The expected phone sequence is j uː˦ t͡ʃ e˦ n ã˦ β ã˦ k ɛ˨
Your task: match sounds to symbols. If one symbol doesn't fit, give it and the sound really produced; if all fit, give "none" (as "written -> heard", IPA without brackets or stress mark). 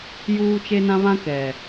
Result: none